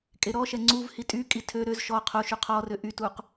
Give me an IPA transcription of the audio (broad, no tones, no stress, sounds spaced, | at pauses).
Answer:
kʼ e ɾ ɔ ʃ ɛ ŋ͡ǀ u v h i tʼ y kʼ i tʰ ø ɾ ø z ʃ ɔ qʰ o ʃ y qʰ ɔ r ø ʔ y t u q